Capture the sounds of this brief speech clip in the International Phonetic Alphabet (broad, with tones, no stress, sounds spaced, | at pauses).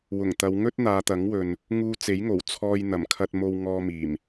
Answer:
w ʊ˨˩ ŋ t̪ ɐ˨˧ w ŋ ɵ˥ t̚ n̪ aː˨˧ t̪ ɐ˨˥ ŋ w ɵ˨ n | ŋ uː˧ t͡s e˨˥ j ŋ o˨˩ w t͡sʰ ɔː˧ j n̪ ɐ˨˩ m kʰ ɐ˧ t̚ m o˧ w ŋ ɔː˧ m iː˨˩ m